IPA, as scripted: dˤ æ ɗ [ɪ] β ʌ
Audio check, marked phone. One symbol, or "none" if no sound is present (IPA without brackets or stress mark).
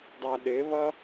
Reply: ɪ